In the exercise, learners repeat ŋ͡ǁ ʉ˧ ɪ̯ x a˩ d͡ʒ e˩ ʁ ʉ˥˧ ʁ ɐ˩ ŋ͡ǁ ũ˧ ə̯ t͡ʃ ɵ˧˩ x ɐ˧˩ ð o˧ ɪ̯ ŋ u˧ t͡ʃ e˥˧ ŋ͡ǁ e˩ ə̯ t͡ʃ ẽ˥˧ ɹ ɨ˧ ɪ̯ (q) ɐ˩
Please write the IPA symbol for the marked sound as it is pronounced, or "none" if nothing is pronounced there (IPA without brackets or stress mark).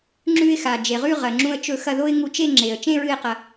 q